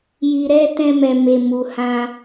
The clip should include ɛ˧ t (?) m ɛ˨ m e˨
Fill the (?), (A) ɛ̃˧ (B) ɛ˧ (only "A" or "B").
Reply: A